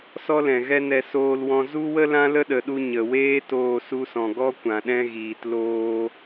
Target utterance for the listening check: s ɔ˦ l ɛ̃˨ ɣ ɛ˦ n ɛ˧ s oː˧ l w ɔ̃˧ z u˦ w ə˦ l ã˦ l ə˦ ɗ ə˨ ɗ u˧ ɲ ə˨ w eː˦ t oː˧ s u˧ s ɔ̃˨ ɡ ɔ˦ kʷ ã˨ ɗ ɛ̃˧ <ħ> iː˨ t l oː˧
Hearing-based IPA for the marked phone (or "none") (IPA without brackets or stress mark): ɣ